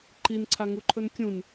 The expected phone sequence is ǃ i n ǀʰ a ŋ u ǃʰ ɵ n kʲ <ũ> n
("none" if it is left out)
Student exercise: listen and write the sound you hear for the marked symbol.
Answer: ũ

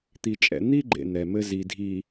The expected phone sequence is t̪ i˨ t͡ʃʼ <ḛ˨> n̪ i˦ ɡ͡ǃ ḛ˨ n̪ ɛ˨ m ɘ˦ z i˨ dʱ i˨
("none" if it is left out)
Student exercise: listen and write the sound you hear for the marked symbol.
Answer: ɛ̰˨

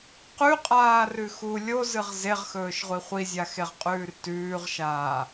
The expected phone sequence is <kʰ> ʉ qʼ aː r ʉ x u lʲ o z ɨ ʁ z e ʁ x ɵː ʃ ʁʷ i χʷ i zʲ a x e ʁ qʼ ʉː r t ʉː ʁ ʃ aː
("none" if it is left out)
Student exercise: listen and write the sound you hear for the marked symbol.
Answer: q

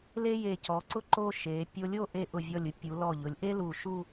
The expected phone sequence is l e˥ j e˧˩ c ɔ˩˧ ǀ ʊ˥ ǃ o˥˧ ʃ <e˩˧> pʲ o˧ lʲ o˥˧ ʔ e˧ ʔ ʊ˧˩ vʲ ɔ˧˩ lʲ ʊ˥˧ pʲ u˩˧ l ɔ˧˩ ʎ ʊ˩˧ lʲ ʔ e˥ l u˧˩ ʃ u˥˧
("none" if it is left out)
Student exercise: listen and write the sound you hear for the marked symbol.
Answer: e˩˧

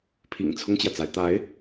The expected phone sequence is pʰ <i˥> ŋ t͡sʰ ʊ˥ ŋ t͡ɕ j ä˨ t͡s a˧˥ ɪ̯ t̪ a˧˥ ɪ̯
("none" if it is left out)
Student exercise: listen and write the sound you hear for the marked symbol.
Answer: ḭ˨˩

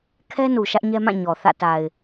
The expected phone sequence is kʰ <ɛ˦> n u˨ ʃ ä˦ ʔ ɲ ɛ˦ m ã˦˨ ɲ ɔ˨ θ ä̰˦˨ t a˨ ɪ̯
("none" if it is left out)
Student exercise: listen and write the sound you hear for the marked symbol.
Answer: ɛ˦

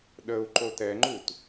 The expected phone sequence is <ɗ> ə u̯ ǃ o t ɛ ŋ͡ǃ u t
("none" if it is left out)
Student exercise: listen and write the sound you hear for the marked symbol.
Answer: ɗ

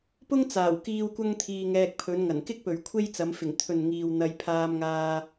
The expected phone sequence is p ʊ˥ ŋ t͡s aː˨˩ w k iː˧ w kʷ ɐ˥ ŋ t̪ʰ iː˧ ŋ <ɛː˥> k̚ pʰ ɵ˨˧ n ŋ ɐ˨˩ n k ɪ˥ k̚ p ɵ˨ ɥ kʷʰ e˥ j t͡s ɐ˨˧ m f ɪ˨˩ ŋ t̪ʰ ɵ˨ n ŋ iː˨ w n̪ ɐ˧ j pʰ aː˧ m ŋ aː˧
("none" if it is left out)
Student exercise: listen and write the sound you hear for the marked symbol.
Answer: ɛː˧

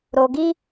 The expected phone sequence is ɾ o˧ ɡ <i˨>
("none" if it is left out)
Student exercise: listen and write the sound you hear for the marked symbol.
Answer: i˦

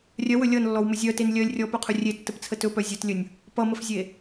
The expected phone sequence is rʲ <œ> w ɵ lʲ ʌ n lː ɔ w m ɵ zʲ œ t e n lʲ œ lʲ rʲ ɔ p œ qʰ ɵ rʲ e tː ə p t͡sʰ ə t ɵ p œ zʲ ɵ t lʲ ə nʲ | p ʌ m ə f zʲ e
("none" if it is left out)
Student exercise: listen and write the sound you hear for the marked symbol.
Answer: œ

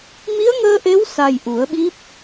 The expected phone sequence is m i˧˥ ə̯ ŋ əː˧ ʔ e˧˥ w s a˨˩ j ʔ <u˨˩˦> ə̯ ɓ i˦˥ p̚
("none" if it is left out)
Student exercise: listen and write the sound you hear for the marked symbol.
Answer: u˨˩˦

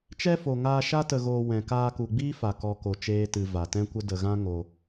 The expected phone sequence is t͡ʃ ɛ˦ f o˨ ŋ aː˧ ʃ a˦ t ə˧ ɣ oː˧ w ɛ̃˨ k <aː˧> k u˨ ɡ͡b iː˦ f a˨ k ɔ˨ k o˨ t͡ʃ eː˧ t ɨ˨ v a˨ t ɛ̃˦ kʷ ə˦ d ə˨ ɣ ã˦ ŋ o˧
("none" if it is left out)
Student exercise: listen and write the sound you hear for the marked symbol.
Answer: aː˧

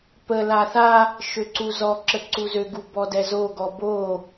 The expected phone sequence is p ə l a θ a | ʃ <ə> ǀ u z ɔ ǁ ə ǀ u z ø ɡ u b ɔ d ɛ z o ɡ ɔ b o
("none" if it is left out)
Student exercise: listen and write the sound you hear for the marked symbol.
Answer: ø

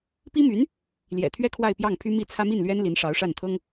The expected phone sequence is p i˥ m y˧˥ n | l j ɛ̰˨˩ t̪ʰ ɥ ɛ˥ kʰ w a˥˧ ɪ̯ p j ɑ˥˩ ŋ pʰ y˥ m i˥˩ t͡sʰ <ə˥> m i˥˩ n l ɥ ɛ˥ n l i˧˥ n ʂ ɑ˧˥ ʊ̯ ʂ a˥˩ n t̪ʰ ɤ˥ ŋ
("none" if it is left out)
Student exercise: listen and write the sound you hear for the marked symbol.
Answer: ä˥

